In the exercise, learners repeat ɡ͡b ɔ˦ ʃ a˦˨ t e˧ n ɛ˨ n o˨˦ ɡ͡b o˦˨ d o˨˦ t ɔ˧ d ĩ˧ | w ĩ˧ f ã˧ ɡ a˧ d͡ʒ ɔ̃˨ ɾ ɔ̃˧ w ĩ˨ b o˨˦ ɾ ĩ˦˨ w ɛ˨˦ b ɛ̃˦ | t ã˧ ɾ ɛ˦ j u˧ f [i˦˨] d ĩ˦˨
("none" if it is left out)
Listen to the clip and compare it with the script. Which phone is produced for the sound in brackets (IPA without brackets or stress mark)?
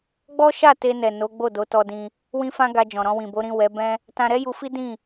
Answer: i˦